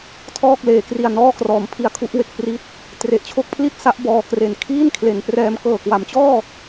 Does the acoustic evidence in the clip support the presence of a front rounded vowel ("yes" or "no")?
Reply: no